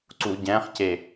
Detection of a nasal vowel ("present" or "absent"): present